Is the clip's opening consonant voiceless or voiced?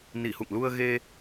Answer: voiced